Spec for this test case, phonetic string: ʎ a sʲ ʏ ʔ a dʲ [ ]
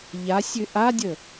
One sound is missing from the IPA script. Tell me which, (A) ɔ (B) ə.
B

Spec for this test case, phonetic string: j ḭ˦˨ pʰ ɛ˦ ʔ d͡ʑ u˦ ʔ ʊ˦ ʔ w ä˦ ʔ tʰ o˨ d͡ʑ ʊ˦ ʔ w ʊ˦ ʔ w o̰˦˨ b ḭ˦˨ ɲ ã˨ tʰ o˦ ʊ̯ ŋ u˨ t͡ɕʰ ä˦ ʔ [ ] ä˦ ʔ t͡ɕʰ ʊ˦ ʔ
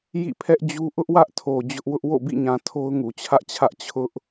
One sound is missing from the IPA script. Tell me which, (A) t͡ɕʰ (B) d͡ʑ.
A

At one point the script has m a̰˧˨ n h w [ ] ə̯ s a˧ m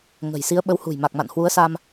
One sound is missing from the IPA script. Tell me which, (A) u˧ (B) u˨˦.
B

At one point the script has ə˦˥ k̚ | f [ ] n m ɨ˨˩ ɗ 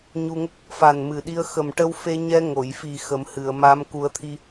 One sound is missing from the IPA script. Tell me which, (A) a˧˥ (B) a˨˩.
B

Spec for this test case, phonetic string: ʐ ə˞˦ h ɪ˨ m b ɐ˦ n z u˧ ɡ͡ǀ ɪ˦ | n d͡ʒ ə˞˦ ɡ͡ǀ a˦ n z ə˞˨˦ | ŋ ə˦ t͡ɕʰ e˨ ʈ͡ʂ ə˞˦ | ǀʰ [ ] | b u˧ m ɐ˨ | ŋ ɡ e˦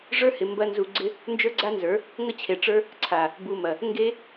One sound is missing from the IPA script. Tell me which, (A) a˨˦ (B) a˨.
B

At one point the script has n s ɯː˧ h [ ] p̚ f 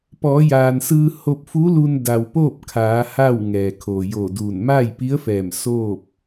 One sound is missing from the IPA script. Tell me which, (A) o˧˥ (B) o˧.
B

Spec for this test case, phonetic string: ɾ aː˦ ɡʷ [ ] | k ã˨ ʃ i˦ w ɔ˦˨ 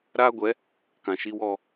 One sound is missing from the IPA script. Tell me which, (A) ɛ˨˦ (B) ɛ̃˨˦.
A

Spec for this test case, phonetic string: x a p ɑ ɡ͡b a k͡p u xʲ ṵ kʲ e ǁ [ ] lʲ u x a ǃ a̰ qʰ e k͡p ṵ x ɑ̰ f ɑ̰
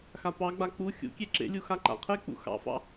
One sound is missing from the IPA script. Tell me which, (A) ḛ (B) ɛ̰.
A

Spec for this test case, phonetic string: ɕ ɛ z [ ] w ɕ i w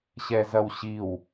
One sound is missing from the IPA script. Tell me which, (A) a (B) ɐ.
B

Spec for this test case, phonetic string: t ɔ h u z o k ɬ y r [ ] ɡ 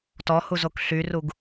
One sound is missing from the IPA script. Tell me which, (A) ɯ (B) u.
B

